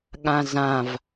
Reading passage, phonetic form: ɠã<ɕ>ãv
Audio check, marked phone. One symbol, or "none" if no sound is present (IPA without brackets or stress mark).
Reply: z